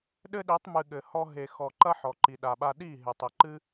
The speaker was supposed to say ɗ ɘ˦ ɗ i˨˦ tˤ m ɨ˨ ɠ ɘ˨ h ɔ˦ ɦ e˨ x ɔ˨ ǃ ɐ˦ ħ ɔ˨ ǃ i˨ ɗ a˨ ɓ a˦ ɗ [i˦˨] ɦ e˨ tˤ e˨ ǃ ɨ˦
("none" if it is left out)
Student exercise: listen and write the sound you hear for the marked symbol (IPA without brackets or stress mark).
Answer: i˦˨